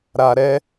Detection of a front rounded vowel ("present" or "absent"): absent